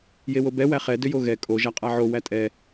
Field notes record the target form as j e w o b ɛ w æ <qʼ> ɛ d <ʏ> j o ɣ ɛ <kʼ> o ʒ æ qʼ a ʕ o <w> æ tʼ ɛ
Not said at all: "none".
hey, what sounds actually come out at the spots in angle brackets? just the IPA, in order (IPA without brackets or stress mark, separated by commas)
χ, ʏ, kʼ, w